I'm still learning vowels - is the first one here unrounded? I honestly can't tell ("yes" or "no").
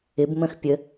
yes